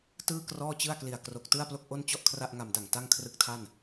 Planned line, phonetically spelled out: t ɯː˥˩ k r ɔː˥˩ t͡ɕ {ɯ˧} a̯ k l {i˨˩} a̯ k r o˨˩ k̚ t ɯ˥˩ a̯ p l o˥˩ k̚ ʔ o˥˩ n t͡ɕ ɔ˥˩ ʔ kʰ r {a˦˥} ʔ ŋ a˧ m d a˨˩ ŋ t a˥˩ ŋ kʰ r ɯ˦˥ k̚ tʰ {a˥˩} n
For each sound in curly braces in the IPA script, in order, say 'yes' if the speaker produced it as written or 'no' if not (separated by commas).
no, yes, no, yes